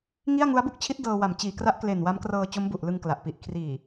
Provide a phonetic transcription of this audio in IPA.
ŋi˥˩a̯ ŋu˦˥a̯bu˥˩k̚t͡ɕʰi˦˥t̚ dɤː˧ wa˨˩m t͡ɕiː˨˩kra˦˥ʔkle˨˩n wa˦˥mkrɤː˧ t͡ɕo˦˥mbu˨˩ʔlɯ˧ŋ kla˨˩ʔpi˨˩ʔ kʰriː˨˩

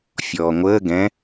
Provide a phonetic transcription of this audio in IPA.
fʲɔːŋʷəː ɡɛ̃

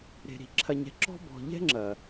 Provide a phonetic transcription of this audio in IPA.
ɾe̤˨ ɾi̤˨ǁʰɐ˨ɲɛ̤˨ǁɔ̤˦ bɔ̤˨ʎɛ̤˦ ŋ͡ǁɐ˨

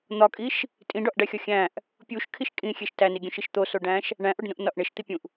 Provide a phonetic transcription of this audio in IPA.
n̪ɒkʼiʃ | tʼĩɖɒʔɖæxʲɒ xʲæ̃ʔ | pʲuʃkʰiʃ kʼĩxʲeʃ tæniɡʲũʃiʃ t̪osoɖæ̃ʃ | ɳæ̃ʔoɖnũʔnɒʔ ɳeʃt̪ipʲũʔ

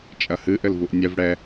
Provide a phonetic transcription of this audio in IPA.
t͡ʃʼɐhɨ ʔɘlvuʔnʲɛv ɽɛ

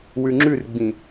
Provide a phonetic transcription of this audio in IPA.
wʉŋ͡ǁʉrɡ͡bĩ

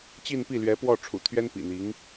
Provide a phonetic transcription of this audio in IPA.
t͡ɕi˥˧npi˥˩lɥɛ˧˥ pwɔ˥˩ʈ͡ʂʰṵ˨˩ t̪ʰɥɛ˥npḭ˨˩n̪i˧˥ŋ

